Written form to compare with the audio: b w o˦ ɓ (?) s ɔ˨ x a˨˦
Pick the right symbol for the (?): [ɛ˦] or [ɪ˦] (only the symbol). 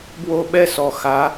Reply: ɛ˦